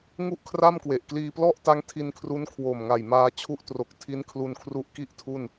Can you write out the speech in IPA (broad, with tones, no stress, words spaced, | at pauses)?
ŋu˥˩ʔkʰra˥˩mkwe˨˩ʔ kliː˧plɔ˥˩ʔta˦˥ŋ tʰi˧nkʰru˦˥n kʰwo˨˩mŋa˨˩jmaː˧ t͡ɕʰu˥˩ʔtro˨˩k̚ tʰi˦˥nkʰlu˧nkʰru˦˥ʔ ki˥˩ʔtʰu˥˩n